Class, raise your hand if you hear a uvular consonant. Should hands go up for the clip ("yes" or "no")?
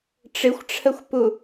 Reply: no